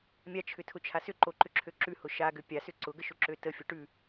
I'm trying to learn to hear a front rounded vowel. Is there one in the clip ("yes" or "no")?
yes